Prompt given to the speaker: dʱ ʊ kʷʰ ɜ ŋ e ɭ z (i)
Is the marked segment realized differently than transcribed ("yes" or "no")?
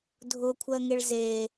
yes